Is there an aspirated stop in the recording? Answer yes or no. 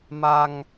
no